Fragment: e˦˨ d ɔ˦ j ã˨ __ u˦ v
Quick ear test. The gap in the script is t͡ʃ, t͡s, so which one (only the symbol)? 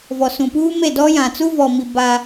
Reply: t͡s